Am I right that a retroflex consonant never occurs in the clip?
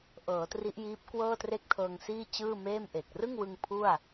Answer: yes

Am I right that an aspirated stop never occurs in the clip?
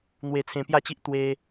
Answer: no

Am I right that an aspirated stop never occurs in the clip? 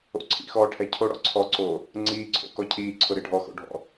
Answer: no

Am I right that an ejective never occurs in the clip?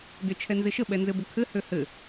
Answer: yes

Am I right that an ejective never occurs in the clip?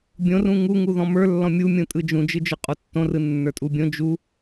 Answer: no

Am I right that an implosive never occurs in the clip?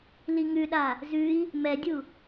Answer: no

